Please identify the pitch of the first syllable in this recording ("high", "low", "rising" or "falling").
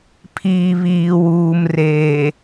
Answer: low